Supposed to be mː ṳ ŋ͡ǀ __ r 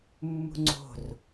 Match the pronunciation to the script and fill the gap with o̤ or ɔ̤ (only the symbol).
o̤